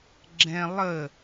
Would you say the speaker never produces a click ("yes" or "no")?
no